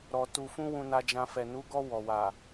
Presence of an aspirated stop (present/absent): absent